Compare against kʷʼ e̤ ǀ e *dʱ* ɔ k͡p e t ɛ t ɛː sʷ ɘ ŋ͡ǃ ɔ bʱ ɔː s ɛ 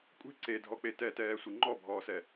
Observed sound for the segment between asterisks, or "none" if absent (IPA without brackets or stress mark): dʱ